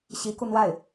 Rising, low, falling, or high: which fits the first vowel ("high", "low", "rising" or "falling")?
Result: rising